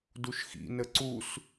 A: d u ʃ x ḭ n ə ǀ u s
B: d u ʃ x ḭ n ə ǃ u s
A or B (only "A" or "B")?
A